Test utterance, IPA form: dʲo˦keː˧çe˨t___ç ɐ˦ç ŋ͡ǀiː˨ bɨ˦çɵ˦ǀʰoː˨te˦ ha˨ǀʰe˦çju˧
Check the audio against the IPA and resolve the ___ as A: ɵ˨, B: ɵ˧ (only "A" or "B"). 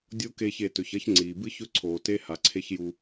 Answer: A